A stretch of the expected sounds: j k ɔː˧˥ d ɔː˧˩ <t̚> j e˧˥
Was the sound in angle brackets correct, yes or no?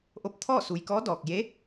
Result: no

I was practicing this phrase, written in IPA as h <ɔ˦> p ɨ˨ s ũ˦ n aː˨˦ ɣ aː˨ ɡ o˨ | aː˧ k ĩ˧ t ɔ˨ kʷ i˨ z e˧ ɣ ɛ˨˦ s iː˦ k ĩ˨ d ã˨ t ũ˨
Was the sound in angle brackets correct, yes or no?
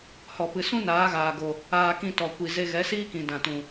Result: no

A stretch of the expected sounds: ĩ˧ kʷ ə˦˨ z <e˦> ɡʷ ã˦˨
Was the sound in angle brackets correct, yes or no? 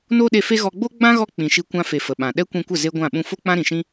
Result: yes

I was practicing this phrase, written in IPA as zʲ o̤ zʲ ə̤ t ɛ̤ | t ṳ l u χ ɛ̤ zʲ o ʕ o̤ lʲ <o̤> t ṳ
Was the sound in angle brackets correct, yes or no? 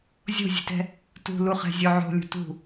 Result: no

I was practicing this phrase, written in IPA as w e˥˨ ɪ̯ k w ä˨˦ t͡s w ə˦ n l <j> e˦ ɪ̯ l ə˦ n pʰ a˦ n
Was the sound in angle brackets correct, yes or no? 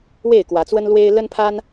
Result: no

